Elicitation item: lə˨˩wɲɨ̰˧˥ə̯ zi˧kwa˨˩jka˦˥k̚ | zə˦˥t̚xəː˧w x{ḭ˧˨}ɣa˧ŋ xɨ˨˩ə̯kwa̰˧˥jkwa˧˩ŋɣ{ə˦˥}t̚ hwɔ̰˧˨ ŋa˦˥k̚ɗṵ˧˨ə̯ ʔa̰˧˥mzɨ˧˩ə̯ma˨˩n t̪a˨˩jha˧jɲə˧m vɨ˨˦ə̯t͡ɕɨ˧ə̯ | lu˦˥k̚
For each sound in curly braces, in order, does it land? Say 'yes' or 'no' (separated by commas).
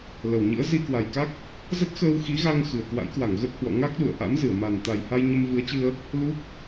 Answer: no, yes